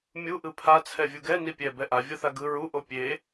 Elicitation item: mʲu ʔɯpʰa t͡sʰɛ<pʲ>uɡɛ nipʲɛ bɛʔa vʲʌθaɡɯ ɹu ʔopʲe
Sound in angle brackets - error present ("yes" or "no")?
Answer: yes